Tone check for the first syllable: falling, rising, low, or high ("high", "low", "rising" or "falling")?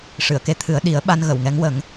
low